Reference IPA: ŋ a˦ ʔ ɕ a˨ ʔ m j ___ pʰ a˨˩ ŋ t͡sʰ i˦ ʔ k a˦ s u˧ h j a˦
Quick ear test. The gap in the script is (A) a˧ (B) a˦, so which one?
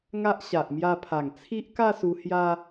A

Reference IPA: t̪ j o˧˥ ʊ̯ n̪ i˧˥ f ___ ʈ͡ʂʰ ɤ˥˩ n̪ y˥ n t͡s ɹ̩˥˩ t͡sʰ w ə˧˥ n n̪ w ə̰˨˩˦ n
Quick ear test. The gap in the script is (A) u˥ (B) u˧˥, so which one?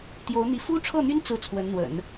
A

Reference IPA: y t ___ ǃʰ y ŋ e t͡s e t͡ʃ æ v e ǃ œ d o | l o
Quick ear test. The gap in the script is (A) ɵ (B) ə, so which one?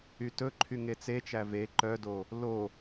A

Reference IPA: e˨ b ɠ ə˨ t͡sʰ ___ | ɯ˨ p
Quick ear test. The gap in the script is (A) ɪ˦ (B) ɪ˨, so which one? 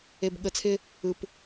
A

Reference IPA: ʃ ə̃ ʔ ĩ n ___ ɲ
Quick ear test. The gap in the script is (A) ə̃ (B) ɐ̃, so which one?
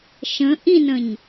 A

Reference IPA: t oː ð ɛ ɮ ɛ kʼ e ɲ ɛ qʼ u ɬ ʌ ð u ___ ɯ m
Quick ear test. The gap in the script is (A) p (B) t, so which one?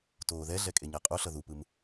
A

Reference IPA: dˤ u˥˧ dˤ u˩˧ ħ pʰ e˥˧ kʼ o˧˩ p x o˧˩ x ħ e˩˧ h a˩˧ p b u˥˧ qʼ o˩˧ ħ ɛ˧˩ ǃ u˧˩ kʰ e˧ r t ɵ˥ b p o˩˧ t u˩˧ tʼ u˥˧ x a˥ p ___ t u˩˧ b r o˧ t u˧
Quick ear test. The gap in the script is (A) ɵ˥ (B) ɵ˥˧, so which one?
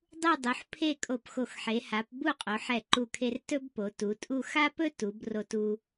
A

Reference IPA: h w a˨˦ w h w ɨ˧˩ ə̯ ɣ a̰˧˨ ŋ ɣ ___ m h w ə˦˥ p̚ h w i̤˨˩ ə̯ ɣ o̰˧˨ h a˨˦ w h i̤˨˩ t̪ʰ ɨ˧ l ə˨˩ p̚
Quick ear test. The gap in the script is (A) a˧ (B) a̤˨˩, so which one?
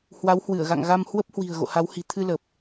A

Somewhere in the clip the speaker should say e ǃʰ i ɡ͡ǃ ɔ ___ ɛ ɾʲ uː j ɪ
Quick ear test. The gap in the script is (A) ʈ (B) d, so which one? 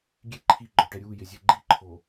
A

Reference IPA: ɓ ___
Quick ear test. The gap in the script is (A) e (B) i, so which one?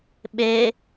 A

